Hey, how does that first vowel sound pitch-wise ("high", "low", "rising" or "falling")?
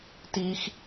high